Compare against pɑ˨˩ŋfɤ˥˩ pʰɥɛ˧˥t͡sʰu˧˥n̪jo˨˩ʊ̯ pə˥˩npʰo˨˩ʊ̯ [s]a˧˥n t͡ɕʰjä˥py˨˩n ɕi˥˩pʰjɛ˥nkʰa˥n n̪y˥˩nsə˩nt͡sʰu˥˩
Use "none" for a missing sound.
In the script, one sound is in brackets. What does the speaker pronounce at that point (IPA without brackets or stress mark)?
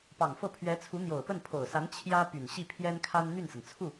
s